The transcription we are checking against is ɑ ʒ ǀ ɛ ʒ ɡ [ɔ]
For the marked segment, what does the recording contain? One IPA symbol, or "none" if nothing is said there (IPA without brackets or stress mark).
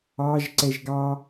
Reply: ɑ